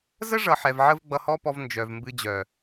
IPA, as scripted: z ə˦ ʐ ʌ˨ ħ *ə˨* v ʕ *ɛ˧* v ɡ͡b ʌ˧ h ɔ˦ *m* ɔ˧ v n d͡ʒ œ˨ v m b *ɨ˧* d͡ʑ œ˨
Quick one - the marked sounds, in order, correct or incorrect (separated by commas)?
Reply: incorrect, incorrect, incorrect, correct